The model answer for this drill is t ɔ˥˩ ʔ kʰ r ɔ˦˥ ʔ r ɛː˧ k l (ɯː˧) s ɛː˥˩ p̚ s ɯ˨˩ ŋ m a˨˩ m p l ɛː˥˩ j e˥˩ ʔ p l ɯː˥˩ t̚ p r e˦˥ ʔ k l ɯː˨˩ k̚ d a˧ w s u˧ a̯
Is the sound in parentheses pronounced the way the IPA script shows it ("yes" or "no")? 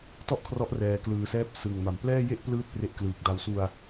yes